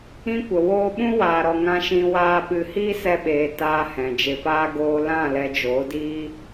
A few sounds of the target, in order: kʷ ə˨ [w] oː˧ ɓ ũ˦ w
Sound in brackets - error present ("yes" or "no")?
no